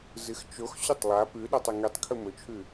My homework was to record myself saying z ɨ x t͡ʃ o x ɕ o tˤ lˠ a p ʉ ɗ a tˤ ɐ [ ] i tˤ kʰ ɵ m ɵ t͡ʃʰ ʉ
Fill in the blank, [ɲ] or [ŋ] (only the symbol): ŋ